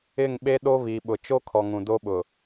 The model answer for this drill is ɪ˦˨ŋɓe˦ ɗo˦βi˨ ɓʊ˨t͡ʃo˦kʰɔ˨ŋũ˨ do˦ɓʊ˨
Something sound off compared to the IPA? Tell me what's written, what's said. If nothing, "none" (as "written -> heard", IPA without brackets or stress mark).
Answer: none